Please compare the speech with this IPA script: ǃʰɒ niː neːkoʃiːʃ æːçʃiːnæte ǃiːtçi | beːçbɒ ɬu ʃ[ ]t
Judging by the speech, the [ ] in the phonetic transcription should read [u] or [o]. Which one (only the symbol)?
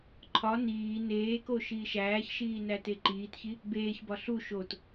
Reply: o